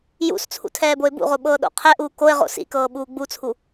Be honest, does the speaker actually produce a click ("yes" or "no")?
no